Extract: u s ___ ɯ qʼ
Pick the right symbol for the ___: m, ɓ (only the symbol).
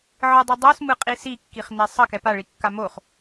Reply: m